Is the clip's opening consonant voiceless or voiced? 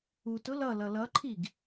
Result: voiceless